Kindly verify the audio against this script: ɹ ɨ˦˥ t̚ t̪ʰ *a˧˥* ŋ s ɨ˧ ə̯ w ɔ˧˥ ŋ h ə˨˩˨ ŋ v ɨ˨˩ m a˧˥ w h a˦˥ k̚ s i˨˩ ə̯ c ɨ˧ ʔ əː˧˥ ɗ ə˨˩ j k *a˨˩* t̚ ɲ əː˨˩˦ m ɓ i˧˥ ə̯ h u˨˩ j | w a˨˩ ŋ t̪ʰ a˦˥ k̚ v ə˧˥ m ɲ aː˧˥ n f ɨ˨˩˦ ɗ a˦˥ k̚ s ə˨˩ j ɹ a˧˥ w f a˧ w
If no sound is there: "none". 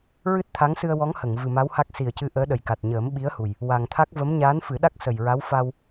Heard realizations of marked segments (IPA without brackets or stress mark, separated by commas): a˧˥, a˨˩